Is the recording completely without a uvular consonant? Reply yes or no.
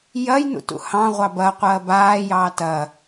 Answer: no